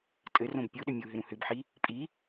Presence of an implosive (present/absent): present